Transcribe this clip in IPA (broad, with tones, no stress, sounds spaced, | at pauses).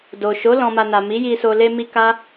d o˨ ʃ o˨˦ l ɔ̃˧ m a˧ n a˨ m i˨˦ j i˧ s o˧ l e˦ m i˦ k a˦